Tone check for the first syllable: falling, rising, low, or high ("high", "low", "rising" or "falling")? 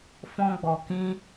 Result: high